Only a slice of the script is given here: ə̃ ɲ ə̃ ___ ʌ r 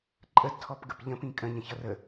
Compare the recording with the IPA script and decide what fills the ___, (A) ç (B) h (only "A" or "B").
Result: A